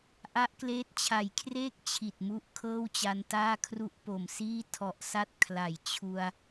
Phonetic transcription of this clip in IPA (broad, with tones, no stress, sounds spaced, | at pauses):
ʔ a˦˥ ʔ k l eː˦˥ t̚ t͡ɕʰ a˨˩ j kʰ r eː˥˩ k̚ t͡ɕʰ i˨˩ t̚ m u˦˥ ʔ kʰ ɤː˥˩ w t͡ɕ a˧ n t aː˥˩ kʰ r u˥˩ ʔ p o˨˩ m s iː˥˩ tʰ ɔ˨˩ ʔ s a˦˥ t̚ kʰ l a˩˦ j t͡ɕʰ u˧ a̯